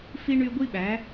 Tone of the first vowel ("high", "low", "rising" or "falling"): high